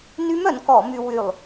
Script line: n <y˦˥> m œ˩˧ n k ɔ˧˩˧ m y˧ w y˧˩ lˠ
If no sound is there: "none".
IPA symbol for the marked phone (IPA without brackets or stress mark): y˦˥